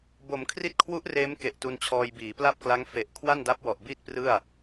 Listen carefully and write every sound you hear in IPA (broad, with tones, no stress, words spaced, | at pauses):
bo˩˦mkʰri˦˥t̚kʰwu˦˥ʔ reː˦˥m ke˨˩ʔtu˧nt͡ɕʰɔː˧j biː˩˦pla˥˩p̚kla˦˥ŋ fe˨˩ʔkʰwa˥˩nda˦˥p̚ wɔ˨˩ʔbiː˥˩t̚prɯ˥˩a̯